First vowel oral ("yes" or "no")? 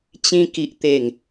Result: no